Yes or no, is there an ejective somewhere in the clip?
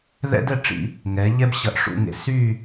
no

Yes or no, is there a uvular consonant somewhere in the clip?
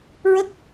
no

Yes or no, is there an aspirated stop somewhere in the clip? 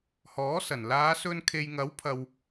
yes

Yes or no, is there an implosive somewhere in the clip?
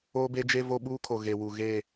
yes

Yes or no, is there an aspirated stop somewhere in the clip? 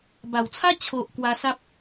yes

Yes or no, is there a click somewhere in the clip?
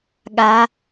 no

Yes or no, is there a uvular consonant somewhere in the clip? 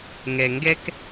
no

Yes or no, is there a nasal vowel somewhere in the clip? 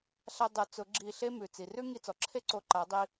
no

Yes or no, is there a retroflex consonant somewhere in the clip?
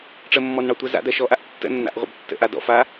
yes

